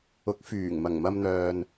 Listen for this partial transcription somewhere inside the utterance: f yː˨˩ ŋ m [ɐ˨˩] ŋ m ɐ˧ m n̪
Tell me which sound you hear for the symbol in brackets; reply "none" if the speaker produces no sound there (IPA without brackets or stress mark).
ɐ˨˩